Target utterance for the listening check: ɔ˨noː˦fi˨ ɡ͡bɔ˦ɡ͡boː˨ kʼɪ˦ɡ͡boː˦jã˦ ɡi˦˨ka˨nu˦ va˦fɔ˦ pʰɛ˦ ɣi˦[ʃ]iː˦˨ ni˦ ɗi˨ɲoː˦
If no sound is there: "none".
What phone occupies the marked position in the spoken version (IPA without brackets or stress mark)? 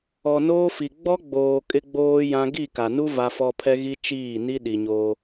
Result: t͡ʃ